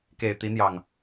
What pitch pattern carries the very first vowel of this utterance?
low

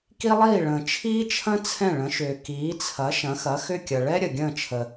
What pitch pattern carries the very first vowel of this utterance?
high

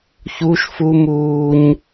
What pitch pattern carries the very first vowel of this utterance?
high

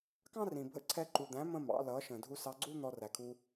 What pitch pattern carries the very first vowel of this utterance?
high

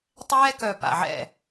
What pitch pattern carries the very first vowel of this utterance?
high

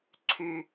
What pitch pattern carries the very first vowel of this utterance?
low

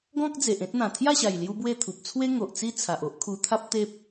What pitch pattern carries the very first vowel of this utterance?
high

